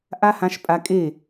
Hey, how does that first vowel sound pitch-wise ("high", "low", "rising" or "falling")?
high